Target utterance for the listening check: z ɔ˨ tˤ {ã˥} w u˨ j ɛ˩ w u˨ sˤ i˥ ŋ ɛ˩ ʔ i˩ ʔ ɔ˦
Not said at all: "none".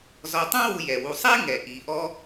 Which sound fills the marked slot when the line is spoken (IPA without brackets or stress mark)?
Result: ã˥